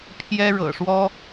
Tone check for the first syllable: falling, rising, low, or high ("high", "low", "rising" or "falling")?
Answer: high